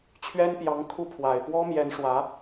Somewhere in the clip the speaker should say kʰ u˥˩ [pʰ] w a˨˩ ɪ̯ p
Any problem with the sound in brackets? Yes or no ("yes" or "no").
no